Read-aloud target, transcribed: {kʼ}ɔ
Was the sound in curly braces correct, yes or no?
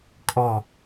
yes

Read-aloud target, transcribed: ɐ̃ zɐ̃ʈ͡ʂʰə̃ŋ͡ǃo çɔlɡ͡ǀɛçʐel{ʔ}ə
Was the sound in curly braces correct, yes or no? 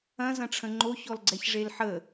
no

